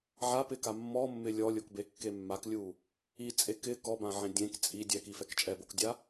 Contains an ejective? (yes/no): yes